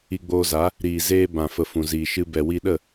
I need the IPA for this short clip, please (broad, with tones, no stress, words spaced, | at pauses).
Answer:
i˧ɡ͡boː˧za˨˦ | ɾiː˨ zeː˧ bã˨fə˨fũ˨ ziː˨ʃɨ˧ bɛ˨wi˧ɗə˦˨